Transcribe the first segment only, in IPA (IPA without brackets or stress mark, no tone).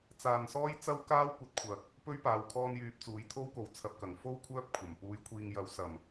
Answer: t͡s